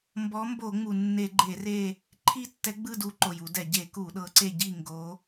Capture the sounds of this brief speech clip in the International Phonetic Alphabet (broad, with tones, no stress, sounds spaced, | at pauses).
m b ɔ˨˦ m b o˧˩˧ ŋ͡m u˩ nː e˧˩˧ ɡ͡ǃ e˧˩˧ r e˦˨ | ǃʰ i˦˨ tː ɛ˨˦ ɡ͡b ɯ˦˨ d u˨˦ ǃ o˩ j u˧˩˧ d ɛ˩ ɟ e˧˩˧ k u˧˩˧ ɗ ɤ˨˦ ǀ e˦˨ ɟ i˦˨ ŋ ɡ o˨˦